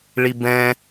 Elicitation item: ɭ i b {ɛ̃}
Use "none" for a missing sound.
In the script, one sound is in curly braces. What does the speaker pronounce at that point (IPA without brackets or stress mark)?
ɛ̃